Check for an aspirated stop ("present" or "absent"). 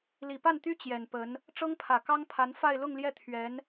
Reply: present